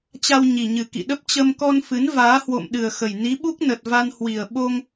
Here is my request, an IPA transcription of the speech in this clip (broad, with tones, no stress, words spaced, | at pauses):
t͡ɕa˧wɲi˨˩ ɲɨ˨˩kḭ˧˨ɗə˦˥p̚ t͡ɕə˧mkɔ˧nfɨ˨˦n vaː˨˦hwo̰˧˨mɗɨ˨˩ə̯xə˨˩j ni˨˦ɓu˦˥k̚nə˨˩t̚ va˧nhwi˨˩ə̯ɓo˧ŋ